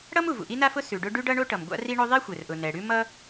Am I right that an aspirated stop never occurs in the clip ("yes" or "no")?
yes